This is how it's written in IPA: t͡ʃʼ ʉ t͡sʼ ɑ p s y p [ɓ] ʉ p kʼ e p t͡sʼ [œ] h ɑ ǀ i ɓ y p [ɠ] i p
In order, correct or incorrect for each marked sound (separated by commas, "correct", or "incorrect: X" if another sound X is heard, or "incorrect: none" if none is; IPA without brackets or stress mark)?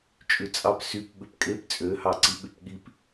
correct, incorrect: ø, correct